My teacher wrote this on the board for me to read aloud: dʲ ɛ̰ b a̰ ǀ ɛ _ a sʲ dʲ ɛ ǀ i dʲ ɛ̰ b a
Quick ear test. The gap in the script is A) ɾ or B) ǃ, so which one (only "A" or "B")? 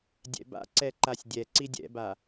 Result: B